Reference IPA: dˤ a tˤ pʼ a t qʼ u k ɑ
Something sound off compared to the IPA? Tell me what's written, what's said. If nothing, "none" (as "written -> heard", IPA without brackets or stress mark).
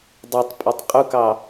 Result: t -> tˤ